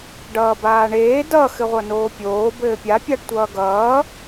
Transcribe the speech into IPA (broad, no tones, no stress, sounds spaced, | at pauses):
ɖ ʌː b aː ɳ eː d ʌ x ɘ ʁʷ ʌ n oː pʲ oː b ɘː pʲ a pʲ a ɖ tʷ ʌː ɡ ʌː